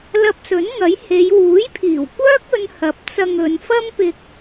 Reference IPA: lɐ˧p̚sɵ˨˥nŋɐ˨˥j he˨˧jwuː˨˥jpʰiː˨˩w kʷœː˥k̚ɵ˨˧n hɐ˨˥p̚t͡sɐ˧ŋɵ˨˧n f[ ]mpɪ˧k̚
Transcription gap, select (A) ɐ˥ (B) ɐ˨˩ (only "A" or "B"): A